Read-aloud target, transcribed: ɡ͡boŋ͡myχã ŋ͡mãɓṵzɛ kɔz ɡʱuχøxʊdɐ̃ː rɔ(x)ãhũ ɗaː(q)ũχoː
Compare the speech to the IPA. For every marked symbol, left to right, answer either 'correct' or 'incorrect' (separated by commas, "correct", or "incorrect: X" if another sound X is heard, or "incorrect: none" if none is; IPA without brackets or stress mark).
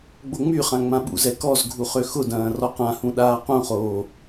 incorrect: q, correct